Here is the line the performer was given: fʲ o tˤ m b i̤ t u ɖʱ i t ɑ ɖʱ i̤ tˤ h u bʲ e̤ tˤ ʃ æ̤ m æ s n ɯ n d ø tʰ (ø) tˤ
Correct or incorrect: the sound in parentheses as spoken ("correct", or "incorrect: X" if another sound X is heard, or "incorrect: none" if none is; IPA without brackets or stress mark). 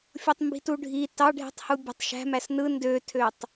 correct